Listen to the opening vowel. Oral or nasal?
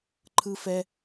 oral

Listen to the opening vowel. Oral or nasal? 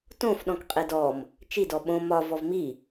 nasal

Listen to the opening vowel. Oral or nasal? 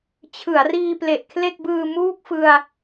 oral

